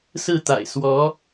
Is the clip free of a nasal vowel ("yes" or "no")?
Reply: yes